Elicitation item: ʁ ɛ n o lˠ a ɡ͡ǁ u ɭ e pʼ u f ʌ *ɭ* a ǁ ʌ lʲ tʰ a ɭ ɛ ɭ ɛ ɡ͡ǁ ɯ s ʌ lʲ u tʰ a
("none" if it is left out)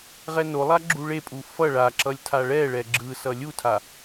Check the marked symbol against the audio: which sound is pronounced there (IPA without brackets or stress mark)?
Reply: ɭ